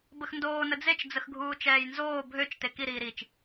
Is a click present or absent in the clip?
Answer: absent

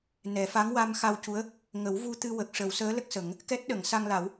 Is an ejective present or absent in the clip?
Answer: absent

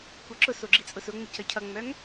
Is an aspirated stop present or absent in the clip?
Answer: present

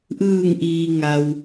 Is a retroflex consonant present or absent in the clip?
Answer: absent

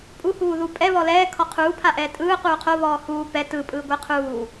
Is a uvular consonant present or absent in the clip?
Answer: present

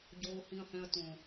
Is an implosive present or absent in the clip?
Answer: absent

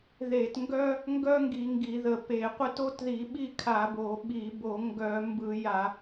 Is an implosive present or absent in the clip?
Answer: present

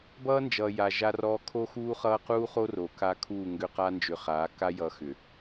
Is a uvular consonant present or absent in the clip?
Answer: present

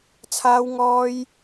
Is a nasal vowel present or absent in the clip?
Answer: absent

